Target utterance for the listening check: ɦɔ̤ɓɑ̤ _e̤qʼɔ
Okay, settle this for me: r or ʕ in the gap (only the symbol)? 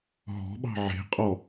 ʕ